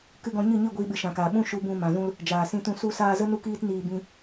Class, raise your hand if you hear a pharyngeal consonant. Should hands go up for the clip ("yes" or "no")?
no